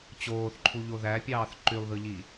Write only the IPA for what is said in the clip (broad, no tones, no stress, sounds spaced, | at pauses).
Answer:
t͡ɕ oː θ ǃʰ u ʎ o ð æ pʲ ɑː θ ǃ y lˠ ð ɯ ʎ i